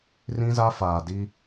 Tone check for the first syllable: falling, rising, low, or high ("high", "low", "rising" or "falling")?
high